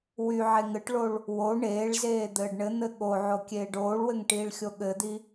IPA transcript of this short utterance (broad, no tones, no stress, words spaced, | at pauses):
wyʕe ŋɘʈɭoɭ | wo ɳeːɭzeː d̪ɘːɖɳɘn̪ɘ ɠoʕo kʲeːɖoːɭwɘŋ ʈiːɭxʲoɠɘd̪i